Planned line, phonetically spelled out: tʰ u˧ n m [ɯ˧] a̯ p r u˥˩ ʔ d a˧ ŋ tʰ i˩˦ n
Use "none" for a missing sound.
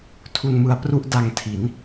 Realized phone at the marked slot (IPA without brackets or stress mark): ɯ˧